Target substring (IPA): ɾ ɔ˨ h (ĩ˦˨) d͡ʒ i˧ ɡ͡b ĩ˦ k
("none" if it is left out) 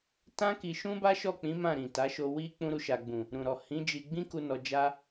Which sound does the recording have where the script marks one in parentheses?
ĩ˨˦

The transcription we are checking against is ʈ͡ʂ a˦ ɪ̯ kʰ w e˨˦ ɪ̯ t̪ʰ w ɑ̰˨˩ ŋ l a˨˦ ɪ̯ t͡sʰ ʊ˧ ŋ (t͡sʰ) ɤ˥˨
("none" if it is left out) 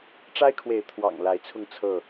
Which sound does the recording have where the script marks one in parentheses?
t͡sʰ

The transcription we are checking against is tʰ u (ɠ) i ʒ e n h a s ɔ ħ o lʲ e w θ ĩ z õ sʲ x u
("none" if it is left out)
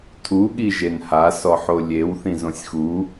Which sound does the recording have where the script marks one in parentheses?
ɠ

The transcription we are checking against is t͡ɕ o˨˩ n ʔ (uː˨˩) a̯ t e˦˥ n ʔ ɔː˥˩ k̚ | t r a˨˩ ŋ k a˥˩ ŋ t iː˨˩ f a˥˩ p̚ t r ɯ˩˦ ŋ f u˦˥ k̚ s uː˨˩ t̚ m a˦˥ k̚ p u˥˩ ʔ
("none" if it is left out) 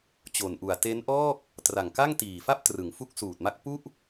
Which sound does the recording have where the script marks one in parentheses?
u˨˩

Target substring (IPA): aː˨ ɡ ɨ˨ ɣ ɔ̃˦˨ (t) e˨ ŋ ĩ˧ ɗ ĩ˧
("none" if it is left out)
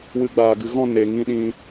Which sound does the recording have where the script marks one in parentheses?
n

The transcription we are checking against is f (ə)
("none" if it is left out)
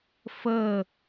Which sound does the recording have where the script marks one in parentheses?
ə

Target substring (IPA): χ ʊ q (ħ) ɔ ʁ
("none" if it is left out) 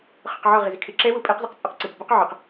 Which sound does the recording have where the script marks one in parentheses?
ʕ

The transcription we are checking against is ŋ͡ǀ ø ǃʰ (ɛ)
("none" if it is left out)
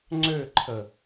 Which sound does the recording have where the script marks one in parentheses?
ə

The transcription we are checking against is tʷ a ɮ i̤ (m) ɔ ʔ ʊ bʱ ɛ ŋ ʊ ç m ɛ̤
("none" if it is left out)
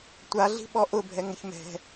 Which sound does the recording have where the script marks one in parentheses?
ɓ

